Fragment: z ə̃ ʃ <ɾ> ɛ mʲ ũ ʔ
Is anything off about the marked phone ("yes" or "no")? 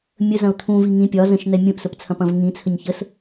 yes